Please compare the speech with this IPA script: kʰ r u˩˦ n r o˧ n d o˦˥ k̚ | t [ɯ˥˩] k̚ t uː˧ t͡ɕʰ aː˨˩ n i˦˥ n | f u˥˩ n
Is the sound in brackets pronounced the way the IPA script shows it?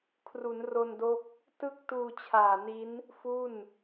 yes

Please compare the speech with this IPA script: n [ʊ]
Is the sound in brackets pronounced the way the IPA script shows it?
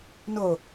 yes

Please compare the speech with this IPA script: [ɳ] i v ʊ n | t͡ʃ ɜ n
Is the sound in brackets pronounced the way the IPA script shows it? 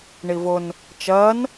yes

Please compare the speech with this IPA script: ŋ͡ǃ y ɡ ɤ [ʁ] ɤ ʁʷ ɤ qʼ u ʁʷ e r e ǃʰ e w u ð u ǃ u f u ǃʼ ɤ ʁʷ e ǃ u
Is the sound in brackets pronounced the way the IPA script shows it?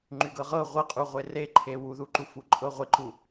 yes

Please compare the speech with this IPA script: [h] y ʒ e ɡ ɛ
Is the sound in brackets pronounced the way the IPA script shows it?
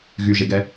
no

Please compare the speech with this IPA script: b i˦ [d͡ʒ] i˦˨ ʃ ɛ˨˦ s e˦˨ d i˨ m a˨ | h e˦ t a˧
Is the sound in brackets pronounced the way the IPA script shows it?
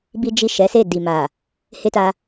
yes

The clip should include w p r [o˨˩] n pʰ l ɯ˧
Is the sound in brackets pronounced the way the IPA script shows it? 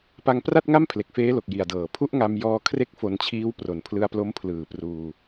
yes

